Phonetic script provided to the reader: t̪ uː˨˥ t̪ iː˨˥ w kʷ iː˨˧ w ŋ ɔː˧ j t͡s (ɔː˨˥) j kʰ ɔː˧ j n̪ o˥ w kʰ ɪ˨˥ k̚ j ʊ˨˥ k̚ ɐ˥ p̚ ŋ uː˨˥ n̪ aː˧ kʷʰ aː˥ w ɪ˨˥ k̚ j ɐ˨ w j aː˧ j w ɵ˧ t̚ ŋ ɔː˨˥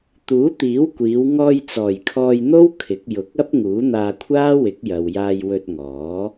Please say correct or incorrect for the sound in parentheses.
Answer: incorrect: ɔː˨˩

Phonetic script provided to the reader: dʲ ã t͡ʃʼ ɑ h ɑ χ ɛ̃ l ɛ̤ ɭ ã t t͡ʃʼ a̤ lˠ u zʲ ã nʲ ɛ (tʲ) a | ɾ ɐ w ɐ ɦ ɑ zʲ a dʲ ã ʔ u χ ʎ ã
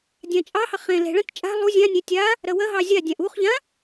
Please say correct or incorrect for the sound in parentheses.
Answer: correct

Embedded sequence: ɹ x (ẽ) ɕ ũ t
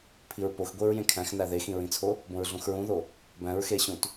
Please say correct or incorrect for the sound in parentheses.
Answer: incorrect: e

